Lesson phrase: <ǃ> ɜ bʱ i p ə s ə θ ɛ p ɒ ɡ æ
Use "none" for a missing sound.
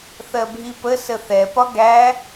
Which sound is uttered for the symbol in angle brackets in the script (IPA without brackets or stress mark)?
θ